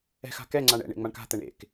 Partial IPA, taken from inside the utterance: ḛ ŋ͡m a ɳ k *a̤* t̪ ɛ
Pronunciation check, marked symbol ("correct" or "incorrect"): correct